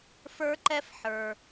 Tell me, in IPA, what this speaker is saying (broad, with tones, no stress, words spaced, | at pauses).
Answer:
fə˞˥ǃɛ˥f ħə˞˩